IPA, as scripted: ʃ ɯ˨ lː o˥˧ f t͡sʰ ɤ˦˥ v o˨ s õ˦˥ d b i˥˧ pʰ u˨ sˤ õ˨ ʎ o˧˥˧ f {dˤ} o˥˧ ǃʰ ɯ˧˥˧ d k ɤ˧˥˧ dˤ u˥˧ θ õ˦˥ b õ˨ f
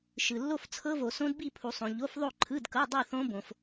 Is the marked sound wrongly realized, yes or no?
yes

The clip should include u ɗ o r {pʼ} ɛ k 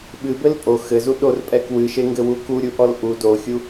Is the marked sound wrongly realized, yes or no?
no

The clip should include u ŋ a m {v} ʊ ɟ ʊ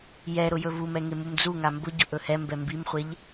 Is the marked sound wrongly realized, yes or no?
yes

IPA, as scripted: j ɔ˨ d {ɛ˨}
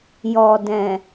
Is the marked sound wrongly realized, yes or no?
yes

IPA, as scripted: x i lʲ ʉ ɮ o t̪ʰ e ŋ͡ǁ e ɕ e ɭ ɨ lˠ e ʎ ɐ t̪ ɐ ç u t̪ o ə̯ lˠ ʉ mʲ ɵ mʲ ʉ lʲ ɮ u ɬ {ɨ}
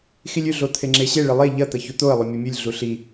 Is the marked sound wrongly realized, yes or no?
yes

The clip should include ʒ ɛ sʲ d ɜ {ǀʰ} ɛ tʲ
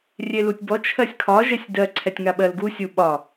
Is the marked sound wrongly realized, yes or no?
no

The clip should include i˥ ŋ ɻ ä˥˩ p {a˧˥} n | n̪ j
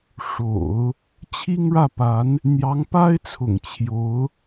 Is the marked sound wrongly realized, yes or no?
no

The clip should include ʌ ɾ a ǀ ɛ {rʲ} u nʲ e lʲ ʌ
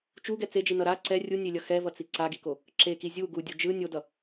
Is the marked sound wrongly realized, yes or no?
no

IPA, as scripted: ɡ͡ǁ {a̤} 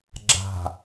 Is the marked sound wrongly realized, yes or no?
no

